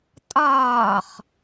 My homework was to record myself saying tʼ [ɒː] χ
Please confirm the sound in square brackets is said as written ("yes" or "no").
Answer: yes